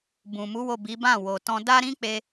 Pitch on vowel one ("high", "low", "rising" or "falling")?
low